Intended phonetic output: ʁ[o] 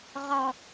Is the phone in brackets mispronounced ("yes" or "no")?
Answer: yes